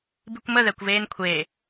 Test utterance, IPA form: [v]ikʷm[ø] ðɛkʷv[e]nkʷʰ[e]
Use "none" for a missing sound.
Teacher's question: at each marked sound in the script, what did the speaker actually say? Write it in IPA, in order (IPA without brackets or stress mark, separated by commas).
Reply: b, ə, eː, eː